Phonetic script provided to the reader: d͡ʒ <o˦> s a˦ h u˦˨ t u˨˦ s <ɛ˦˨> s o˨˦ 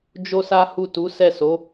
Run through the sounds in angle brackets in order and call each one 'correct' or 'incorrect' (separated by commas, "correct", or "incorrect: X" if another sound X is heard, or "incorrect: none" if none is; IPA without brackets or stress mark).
correct, correct